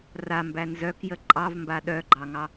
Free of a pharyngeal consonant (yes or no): yes